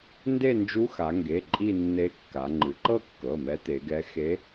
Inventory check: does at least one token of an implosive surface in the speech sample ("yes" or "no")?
no